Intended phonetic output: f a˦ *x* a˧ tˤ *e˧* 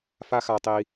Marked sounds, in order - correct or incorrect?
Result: correct, incorrect: i˧

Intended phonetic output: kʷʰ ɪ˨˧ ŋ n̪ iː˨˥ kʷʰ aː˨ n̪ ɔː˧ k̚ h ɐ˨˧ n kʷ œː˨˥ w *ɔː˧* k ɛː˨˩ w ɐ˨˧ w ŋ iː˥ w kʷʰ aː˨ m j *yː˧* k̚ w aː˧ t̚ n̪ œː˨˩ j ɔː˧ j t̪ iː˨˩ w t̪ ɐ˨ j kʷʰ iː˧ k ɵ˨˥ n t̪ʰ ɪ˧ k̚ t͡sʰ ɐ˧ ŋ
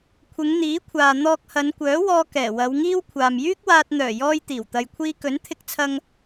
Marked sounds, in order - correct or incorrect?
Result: correct, incorrect: yː˥

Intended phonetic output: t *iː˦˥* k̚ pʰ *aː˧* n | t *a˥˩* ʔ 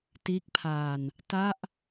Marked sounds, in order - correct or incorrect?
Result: correct, correct, correct

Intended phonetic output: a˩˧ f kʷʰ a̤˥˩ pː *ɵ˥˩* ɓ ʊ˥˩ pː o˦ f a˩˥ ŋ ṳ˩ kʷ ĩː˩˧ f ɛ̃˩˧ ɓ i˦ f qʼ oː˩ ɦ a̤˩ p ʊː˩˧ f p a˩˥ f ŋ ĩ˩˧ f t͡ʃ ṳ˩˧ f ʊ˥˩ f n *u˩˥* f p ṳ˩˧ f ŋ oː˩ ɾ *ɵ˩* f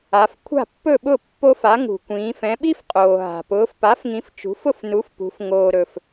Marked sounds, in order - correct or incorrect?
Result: correct, correct, correct

